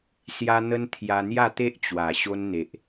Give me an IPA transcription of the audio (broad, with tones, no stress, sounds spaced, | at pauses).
s j a˧ n̪ ə˧ n t̪ʰ j a˧ n̪ j a˥˧ t̪ e˦ ʔ t͡ɕ w a˨˩ ɕ o˧ n n̪ e˨ ʔ